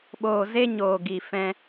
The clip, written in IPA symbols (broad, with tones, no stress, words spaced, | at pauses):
ɓoː˨ ze˧ɲoː˨ ɡi˨fɛ̃˧